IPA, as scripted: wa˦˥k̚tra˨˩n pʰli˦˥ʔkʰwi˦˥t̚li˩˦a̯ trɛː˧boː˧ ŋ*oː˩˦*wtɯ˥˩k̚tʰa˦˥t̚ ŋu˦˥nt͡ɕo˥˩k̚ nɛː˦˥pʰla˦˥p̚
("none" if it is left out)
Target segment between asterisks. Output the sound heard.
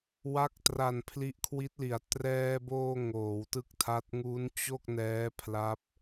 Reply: oː˩˦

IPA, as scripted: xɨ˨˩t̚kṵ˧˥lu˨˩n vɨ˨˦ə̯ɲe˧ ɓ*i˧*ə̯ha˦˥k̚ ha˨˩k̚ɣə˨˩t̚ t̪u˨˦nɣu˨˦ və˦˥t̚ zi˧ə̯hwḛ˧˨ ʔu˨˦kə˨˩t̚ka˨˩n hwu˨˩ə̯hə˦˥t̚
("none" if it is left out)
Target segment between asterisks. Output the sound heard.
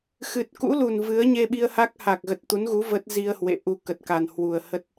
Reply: i˧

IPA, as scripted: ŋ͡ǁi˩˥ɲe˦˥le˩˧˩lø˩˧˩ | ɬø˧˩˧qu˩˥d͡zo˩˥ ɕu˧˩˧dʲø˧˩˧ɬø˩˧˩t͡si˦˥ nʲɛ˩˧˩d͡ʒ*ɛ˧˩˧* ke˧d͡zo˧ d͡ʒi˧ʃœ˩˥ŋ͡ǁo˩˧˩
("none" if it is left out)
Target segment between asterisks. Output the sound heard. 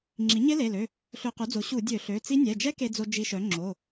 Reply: ɛ˦˥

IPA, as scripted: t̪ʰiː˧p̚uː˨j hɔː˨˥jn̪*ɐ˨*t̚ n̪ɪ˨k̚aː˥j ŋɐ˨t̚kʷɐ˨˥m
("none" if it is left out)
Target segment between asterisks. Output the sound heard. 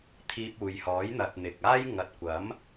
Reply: ɐ˨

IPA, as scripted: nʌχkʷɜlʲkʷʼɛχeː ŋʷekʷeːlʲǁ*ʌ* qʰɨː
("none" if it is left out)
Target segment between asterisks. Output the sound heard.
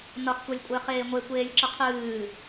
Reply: ʌ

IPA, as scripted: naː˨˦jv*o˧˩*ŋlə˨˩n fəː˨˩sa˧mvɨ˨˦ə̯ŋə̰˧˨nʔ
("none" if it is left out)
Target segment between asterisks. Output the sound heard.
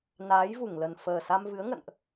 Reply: u˧˩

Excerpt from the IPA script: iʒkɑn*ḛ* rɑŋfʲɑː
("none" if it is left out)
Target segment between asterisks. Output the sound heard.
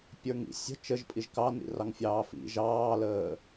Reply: ḭ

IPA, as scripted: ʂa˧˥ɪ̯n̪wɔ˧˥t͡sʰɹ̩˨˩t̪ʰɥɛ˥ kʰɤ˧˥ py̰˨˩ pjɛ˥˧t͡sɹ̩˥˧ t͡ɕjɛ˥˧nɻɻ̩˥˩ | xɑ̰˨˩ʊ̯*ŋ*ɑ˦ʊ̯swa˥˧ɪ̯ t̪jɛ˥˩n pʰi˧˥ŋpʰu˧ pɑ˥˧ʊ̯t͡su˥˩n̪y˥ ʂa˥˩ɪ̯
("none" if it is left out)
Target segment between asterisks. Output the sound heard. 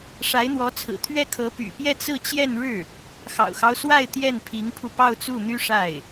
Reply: x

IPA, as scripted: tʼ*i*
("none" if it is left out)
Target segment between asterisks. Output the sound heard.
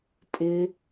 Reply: ɪ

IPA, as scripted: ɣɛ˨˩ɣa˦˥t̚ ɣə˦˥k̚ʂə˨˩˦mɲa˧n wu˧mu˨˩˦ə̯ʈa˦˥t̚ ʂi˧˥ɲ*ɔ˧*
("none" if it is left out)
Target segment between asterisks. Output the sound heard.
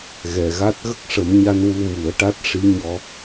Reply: ɔ˧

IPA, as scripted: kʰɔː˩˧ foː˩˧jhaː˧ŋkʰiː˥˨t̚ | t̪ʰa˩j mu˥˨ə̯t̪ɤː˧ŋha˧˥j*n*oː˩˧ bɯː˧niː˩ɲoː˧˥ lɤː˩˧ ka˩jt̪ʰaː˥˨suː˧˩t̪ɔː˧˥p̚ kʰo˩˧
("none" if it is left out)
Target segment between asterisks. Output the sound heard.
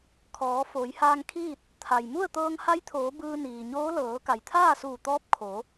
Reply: t̪ʰ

